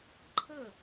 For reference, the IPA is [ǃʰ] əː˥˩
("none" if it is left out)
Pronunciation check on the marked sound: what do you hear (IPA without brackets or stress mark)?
ǃʰ